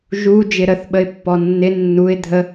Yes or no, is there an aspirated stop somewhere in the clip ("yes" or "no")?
no